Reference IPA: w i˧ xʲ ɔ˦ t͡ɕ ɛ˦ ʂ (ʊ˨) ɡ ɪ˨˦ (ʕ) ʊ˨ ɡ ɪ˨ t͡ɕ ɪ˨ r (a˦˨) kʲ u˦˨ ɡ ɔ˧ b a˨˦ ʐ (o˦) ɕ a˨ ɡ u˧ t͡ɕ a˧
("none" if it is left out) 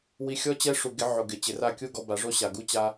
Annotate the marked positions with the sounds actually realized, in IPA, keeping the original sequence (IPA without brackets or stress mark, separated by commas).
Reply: u˨, ʕ, a˦˨, o˦